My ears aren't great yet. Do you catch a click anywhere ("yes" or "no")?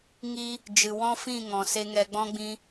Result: no